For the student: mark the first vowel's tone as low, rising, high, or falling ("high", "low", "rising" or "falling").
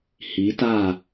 rising